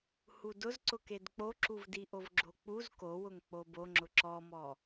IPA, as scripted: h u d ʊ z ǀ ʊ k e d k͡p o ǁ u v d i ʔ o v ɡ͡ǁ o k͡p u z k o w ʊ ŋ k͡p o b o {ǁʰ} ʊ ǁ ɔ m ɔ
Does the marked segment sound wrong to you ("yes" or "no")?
yes